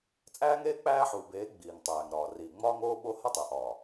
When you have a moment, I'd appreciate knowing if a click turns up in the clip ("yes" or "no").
no